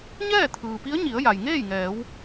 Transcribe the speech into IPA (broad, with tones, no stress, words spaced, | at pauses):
ɲɛː˥˨t̪ʰɯː˩pi˧˥ə̯ɲi˩˧ə̯ ja˩jŋeː˥˨jŋɛː˩˧w